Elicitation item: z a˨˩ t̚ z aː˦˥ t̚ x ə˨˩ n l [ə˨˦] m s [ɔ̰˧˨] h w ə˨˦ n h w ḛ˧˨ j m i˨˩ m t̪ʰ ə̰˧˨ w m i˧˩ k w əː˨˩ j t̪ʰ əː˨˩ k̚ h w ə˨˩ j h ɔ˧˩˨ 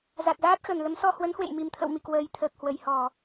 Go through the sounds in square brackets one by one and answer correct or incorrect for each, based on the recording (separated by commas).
correct, incorrect